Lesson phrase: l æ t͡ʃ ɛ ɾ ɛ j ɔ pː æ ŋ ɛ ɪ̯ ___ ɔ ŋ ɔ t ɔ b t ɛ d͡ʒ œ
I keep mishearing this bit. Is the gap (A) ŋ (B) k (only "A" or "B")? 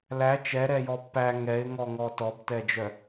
A